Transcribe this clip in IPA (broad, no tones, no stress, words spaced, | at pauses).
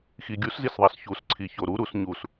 xiɡʲuszisðˤæs çusǀʰi çoɾuɾus ɲus